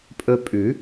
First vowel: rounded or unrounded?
rounded